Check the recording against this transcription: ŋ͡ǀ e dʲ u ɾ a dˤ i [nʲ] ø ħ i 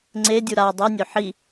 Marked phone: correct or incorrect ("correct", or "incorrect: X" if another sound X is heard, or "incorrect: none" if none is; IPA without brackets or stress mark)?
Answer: correct